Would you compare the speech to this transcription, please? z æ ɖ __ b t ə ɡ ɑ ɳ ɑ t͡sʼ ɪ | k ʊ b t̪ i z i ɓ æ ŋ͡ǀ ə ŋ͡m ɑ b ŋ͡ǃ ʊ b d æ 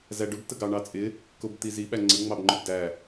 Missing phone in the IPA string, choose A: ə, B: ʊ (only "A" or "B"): B